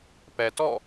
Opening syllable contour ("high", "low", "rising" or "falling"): low